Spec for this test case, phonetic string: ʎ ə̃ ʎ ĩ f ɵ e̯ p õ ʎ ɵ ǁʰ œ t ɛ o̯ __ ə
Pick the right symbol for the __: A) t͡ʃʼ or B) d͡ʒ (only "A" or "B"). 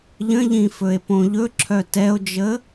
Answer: B